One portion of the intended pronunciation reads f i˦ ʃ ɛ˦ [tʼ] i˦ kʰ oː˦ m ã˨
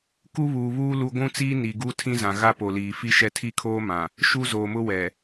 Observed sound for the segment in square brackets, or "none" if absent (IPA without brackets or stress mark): tʰ